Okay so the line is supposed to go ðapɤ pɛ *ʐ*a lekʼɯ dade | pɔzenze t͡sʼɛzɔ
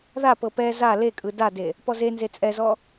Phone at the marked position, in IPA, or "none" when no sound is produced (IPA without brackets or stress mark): z